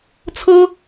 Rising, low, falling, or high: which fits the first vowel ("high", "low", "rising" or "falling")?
high